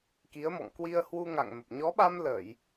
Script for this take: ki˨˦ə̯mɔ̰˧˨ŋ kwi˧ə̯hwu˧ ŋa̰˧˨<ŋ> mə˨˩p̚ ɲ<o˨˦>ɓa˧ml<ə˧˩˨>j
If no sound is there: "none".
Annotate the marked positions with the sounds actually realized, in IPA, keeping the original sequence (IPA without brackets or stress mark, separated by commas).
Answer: ŋ, ɔ˨˦, ə˧˩˨